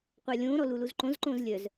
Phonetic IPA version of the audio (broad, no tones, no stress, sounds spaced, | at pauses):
qʷ a lʲ õː ɾ ɔ l u l u z ǃ õ z ǃ õː z lʲ œ z